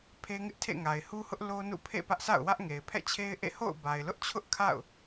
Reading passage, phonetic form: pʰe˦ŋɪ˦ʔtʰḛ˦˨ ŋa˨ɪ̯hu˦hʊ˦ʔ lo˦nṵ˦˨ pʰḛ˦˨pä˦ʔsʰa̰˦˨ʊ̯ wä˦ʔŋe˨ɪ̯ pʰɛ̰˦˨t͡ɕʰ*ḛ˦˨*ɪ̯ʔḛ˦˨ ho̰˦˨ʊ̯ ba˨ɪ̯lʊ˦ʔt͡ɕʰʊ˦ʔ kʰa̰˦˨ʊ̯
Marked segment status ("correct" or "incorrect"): incorrect